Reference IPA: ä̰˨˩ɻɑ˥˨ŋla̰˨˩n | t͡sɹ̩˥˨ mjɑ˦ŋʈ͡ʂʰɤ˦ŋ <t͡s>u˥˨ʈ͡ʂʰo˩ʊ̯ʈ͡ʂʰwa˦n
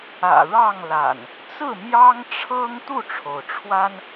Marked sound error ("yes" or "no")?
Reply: yes